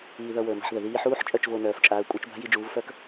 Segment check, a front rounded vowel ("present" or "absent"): present